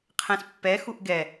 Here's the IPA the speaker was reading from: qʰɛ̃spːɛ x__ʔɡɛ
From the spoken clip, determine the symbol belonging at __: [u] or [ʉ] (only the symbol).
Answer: u